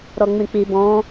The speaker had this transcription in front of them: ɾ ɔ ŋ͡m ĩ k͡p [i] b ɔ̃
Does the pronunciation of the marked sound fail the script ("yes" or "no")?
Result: no